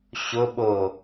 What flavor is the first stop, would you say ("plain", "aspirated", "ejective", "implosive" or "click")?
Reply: implosive